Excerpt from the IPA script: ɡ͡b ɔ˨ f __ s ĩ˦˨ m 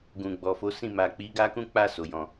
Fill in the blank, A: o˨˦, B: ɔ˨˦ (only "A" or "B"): A